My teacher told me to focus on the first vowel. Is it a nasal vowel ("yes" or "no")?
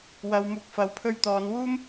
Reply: no